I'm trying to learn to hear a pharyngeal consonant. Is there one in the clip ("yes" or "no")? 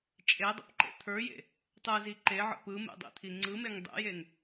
yes